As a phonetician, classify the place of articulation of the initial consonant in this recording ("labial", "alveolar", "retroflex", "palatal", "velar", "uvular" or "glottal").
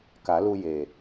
velar